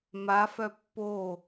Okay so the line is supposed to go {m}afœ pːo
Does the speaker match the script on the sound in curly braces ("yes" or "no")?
yes